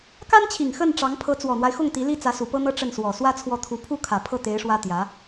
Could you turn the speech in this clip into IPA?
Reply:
ka˥nt͡ɕʰi˨˩ŋ xə˥˩nʈ͡ʂɑ˧˥ŋ pʰɤ˧˥ t͡swɔ˨˩n̪wa˦ɪ̯xʊ˥˩ŋ t̪i˧˥li˥ t͡sä˧˥su˨˩pɤ˥n̪ɤ˥ ʈ͡ʂə˥˩nswɔ˨˩ swä˥ t͡sʰwɔ˥˩ t̪ʰu˧˥pʰu˥ kʰä˨˩ pʰɤ˥˩t̪e˧˥ɪ̯ ʂwä˥t̪jä˧˥

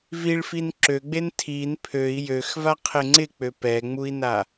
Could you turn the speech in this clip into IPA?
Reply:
viɭfin ǁøɡ͡ben tʰin pʰøi̯ jøxvaqʰɪ ŋ͡ǀɪk͡pø pɛŋ͡mui̯na

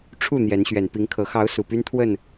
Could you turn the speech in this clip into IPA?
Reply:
ʈ͡ʂʰu˥˨ n̪jɛ˨˦nɕɥɛ˨˩npi˨˦ŋkʰɤ˨˦ xɑ˨˦ʊ̯ su˨˩py˦nt̪ʰwə˥˨n

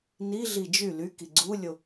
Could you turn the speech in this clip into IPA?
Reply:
niɮi d͡ʒy ly kiɡ͡ǀulʲo

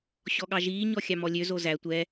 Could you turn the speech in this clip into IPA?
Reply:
ɕɔɠɑʒiː ɲɔxʲɑmɔlʲø zozæ tʷɛ

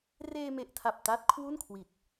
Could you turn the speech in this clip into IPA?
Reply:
reː˧me˨˩ʔtʰa˨˩p̚ ta˦˥t̚kʰwu˥˩nkʰwi˨˩t̚

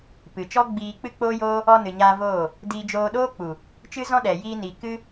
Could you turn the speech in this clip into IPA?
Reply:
pɨ˨t͡ʃɔ˦ɡ͡biː˧ k͡pɨ˦k͡poː˦joː˦ | ɔ˧nɨ˨ɲaː˧ voː˦˨ | diː˧d͡ʒoː˧ɗoː˦k͡pu˨ | t͡ʃɨ˦zɔ̃˦ɗɛ˨ jiː˧ niː˨ kɨ˦

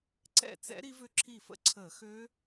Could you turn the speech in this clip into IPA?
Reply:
ǀɛ̰˥˩t͡sɛ̰˦˥ ɾi˦˥vʏ˥˩ǁʰi˥˩ fə̰˥˩ǀʰəː˧˩˧ xøː˦˥

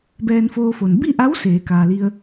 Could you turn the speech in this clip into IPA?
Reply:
bɛː˧nfoː˧fo˩n bi˥˨ʔa˧˥w seː˩˧kaː˩li˧ə̯

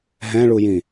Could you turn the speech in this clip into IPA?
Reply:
ɦɛ̃ɭujĩ

